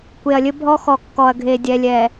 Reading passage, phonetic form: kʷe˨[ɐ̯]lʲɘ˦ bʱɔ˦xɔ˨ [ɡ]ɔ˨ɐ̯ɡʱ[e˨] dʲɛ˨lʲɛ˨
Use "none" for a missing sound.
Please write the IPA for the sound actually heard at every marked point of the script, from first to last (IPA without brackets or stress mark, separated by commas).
ɐ̯, kː, e˨